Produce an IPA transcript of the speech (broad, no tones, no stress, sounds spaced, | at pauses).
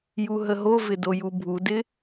j u ɦ ə ɦ o v ɪ d o j u bʱ u d ɪ